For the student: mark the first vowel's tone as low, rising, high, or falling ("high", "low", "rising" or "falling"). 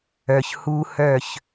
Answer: low